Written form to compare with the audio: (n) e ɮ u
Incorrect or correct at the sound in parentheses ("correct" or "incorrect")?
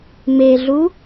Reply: incorrect